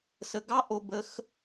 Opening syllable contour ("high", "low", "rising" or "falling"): low